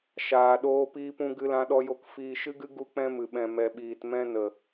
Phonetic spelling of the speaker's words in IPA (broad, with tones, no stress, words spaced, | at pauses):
ʃaː˧ɗoː˦piː˦pũ˦ ɡɨ˦lã˦ɗɔ˦jo˦k fiː˧ʃɨ˦ɡɨ˦ ɡu˧k͡pɛ̃˧ mɨ˨ɓɛ̃˨ mɛ˨ɓiː˨t mɛ̃˧nə˨